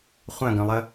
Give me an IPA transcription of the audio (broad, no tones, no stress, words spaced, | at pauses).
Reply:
χʷœ̃ɡœ̃lˠə